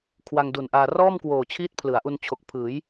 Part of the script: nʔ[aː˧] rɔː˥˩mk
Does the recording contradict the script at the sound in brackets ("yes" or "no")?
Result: no